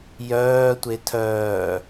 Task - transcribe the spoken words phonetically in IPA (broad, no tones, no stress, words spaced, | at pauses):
jœː tʷetʰœː